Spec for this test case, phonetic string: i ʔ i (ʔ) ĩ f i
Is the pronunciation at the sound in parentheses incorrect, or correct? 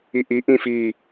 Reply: correct